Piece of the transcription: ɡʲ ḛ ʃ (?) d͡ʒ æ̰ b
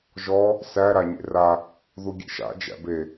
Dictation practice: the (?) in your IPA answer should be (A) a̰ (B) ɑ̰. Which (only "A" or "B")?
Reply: A